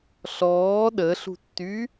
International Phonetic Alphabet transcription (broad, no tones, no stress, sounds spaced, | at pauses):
ɬ ɔː ɗ ə ɬ ṳ tː y